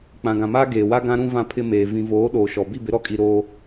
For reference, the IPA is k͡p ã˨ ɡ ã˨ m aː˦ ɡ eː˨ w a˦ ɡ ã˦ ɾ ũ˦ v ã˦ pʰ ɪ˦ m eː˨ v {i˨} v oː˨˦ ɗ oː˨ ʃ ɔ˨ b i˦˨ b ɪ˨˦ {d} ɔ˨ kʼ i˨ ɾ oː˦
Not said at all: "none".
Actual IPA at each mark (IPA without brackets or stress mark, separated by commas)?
ĩ˨, ɾ